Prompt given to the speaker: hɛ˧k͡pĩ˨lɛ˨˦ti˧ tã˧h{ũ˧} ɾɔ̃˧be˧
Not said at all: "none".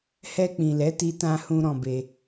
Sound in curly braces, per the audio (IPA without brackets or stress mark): ũ˧